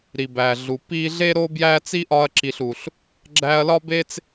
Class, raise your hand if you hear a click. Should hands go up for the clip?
yes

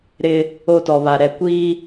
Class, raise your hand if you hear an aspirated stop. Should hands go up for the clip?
no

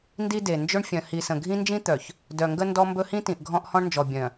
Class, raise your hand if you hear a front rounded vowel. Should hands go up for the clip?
yes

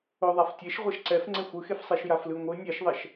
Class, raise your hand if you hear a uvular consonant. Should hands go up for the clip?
yes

